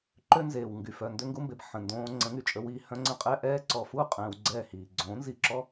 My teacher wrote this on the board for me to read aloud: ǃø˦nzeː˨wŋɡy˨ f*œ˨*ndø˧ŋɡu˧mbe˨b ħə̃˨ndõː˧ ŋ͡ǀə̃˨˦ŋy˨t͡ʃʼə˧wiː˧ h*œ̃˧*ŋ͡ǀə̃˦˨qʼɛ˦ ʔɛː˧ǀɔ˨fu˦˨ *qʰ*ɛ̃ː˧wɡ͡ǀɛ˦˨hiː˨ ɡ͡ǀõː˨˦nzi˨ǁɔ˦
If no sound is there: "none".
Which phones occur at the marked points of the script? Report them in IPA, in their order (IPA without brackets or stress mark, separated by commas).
œ˨, œ̃˧, qʼ